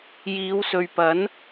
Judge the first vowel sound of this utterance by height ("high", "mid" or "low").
high